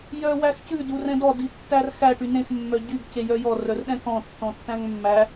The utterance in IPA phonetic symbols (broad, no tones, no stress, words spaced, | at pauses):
jœwæxcʉ durɛ̃dɔ ditːærxæ ʈynẽx mːœɟyɡ cejœjɔ rœrɗɛ̃kɔ̃ tːɔ̃tːæ̃ŋmːæ